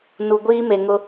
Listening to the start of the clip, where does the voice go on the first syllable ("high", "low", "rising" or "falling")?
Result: low